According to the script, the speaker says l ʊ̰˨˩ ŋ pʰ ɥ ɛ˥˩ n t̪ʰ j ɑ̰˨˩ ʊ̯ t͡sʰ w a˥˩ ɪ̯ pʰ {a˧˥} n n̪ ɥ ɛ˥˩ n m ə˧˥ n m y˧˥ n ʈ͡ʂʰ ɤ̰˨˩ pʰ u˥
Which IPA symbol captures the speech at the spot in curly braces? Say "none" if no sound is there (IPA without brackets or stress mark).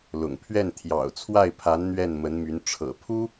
a˧˥